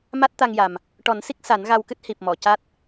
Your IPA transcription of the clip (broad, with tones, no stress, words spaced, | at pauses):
ma˦˥t̚t̪a˧ŋja˨˩m | ʈɔ˨˩˦nsi˦˥k̚ sa˨˩˦nɣa˧wkɨ˦˥t̚ hi˨˩p̚mɔ˨˩˨ca˦˥t̚